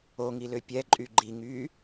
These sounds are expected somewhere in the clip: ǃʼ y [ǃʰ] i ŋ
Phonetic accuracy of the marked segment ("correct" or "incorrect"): incorrect